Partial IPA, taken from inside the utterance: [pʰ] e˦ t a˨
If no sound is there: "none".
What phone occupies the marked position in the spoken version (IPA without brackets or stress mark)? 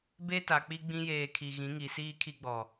b